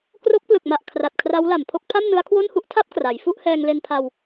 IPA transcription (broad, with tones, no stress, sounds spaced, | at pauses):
k r o˦˥ k̚ p l ɯ˨˩ k̚ m a˨˩ ʔ kʰ r a˨˩ t̚ kʰ r a˦˥ w l a˨˩ m pʰ o˥˩ k̚ pʰ a˥˩ m n ɯ˦˥ a̯ kʰ w o˥˩ n h u˥˩ ʔ tʰ a˥˩ p̚ k r a˩˦ j f u˥˩ ʔ h ɛː˧ ŋ l e˧ n pʰ a˧ w